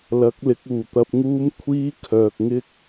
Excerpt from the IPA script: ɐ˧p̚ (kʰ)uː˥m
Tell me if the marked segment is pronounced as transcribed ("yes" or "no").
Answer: no